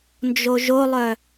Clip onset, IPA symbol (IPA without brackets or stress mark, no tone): n